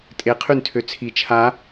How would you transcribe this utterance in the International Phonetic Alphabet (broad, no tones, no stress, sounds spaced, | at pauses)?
tʼ e qʰ y n tʰ ø t͡sʰ i t͡ʃʰ a